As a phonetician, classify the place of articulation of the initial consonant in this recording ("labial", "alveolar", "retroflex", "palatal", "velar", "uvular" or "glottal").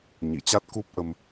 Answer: palatal